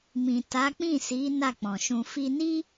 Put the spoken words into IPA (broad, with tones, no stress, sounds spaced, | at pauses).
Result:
m ĩ˨ t a˨˦ k͡p ĩ˦˨ s i˨˦ n a˦˨ k͡p ɔ̃˨ ʃ ũ˧ f i˧ n i˦